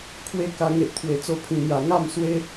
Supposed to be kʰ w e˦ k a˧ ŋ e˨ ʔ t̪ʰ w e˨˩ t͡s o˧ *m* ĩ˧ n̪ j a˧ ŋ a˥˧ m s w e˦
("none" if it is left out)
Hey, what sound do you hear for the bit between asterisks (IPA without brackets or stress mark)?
pʰ